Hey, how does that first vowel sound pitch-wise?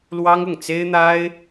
high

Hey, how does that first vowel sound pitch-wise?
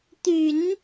low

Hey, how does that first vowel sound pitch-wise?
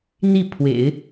falling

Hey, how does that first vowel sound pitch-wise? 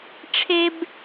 high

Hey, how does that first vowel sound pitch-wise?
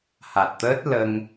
low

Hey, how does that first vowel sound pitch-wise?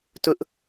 high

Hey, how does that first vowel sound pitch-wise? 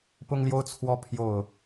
high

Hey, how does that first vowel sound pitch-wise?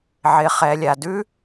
low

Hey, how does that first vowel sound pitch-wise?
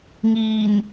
low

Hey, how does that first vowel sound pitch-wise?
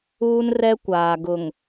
high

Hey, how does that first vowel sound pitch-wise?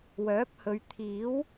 rising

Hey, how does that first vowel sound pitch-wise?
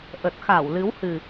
low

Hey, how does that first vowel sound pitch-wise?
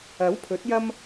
rising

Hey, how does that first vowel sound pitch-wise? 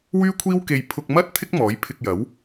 high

